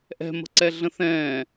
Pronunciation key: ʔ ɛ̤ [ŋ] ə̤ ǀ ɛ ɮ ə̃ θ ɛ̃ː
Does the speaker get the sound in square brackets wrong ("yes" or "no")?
yes